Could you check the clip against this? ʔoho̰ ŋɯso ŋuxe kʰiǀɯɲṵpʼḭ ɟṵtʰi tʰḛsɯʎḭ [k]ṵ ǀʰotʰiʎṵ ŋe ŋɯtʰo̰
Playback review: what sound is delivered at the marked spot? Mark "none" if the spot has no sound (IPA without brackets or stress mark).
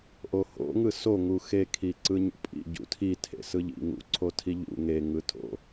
ŋ